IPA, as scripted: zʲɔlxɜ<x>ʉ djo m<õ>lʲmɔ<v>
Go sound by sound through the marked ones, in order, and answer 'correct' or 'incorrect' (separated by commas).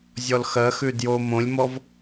correct, correct, correct